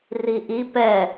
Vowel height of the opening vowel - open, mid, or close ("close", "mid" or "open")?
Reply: close